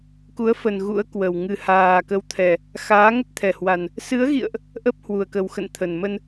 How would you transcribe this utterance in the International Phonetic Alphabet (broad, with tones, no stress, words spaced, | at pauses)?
ku˨˦ə̯fə˨˩n ɣṵ˧˥ə̯kwə˨˩w ŋɨ˨˩haː˨˩kə˨˦wt̪ʰɛ˨˩ | xaː˨˦ŋə˦˥t̚t̪ʰɛ˨˩hwa˨˩n | sɨ˨˦ə̯ɣḭ˧˨ə̯ʔ | ʔə˦˥p̚hwu˨˩ə̯ kə˨˩w xə̰˧˨n t̪ʰə˨˩nmə˧n